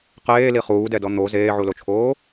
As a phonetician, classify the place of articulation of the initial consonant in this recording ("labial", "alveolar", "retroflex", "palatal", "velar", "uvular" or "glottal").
uvular